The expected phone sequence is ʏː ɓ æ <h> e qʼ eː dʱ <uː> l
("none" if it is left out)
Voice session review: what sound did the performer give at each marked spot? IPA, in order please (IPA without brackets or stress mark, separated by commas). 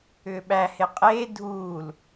h, uː